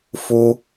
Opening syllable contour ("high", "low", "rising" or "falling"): high